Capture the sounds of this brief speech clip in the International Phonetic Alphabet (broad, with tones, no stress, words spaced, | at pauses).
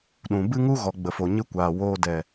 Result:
ɗũ˨ bɨ˦ŋu˦ɣɔ˨ ɡ͡bə˨fo˨ɲɨ˦kʷaː˨ woː˧dɛ˨